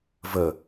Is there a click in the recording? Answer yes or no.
no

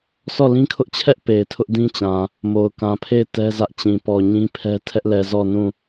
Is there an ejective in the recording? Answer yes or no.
no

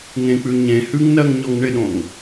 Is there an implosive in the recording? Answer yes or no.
yes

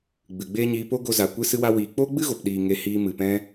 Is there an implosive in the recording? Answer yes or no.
yes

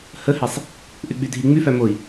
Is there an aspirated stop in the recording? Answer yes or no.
no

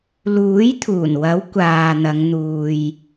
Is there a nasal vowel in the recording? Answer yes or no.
no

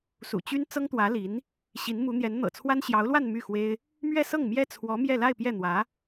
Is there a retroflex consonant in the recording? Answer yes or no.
no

